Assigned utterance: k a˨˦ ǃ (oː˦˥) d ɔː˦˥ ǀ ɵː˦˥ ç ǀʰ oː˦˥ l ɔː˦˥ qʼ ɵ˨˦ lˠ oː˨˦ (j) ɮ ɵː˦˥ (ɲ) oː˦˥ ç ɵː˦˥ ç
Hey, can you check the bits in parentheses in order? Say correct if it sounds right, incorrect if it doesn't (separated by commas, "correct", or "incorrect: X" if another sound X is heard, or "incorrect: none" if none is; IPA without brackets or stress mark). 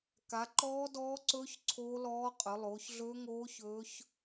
incorrect: ɔː˦˥, incorrect: ç, incorrect: ŋ